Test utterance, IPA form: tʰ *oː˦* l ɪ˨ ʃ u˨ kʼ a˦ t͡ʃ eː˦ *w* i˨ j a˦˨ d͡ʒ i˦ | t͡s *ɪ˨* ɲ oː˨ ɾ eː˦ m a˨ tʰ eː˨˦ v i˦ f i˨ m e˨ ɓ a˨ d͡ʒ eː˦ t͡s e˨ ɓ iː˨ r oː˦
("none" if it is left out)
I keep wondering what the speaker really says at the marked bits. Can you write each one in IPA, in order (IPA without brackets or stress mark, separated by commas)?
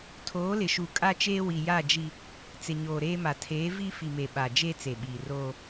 oː˨˦, w, ɪ˨